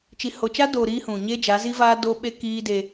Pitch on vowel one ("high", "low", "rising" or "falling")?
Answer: low